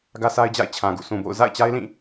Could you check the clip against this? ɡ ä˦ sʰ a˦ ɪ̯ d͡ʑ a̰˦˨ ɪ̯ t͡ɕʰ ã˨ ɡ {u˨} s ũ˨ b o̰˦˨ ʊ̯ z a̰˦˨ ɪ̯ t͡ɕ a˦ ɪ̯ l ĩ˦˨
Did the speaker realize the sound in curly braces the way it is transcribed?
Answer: no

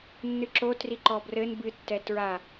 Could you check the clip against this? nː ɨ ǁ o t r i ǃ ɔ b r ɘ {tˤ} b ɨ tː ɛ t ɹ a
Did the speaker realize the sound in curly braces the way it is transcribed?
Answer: no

